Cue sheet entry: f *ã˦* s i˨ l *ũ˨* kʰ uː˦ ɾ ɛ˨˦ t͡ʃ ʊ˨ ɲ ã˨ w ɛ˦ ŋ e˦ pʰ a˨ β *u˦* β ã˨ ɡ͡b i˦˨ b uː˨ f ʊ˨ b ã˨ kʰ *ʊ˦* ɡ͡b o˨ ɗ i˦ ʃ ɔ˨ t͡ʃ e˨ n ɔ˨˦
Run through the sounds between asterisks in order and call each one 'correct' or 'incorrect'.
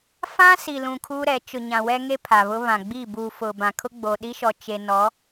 correct, correct, incorrect, correct

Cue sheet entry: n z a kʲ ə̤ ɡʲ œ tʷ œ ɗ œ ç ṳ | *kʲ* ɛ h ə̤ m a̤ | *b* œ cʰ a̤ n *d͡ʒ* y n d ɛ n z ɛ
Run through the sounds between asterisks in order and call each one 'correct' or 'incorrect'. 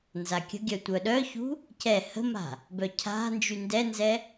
incorrect, correct, correct

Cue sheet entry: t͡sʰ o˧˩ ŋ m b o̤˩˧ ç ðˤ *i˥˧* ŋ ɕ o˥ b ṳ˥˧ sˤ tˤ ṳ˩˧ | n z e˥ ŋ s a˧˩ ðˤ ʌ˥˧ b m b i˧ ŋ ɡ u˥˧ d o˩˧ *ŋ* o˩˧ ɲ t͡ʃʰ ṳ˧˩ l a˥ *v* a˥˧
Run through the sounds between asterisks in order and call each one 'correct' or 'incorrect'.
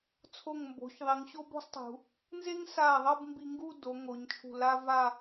incorrect, correct, correct

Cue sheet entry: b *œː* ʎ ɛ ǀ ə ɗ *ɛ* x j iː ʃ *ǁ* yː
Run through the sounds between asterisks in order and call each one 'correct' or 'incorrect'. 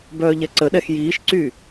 correct, correct, incorrect

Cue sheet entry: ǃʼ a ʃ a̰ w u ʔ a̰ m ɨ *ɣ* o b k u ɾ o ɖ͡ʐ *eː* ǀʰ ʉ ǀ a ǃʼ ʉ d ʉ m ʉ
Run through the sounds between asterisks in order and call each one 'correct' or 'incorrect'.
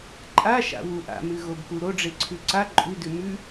correct, incorrect

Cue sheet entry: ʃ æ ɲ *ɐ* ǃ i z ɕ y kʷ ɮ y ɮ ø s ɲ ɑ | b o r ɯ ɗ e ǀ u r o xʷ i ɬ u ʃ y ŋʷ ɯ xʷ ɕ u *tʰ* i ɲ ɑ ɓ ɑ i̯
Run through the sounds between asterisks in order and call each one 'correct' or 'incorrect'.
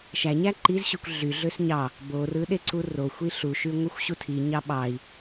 incorrect, correct

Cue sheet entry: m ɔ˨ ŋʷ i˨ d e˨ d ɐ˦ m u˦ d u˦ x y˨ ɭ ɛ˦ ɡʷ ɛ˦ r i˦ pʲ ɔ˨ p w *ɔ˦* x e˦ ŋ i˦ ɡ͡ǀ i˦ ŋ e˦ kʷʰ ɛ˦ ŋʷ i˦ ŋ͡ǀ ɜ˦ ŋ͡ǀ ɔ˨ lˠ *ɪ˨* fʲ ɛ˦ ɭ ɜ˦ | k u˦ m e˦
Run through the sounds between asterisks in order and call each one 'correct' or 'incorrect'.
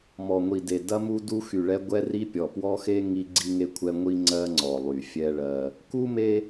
correct, incorrect

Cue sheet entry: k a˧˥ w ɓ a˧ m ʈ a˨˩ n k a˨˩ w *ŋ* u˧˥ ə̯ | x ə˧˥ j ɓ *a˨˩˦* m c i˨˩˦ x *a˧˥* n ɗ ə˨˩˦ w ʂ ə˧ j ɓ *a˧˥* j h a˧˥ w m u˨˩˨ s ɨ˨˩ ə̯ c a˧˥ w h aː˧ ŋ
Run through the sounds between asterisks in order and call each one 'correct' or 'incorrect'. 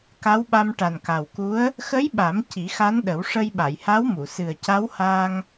incorrect, correct, correct, incorrect

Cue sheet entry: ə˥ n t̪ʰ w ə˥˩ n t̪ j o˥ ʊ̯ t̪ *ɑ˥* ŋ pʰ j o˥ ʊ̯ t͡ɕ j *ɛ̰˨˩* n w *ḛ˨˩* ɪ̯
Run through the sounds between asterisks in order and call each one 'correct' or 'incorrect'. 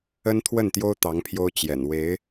incorrect, correct, incorrect

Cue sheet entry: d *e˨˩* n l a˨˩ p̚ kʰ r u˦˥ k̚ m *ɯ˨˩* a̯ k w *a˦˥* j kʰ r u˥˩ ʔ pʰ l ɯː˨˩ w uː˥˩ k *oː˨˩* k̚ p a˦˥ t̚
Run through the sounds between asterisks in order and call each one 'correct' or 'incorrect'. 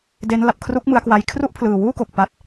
incorrect, incorrect, correct, incorrect

